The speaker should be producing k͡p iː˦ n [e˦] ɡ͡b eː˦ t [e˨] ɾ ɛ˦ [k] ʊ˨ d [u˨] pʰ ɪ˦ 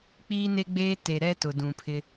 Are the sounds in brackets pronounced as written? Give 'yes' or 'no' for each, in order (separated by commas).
yes, yes, no, no